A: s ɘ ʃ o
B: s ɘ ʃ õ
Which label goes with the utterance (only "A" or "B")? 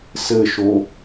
A